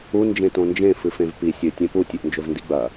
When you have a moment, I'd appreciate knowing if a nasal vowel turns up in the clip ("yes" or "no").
yes